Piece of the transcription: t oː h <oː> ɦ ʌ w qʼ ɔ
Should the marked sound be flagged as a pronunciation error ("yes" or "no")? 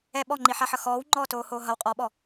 no